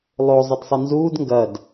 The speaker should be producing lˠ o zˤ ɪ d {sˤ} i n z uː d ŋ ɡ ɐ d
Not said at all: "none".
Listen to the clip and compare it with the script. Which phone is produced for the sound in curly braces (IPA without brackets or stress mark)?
sˤ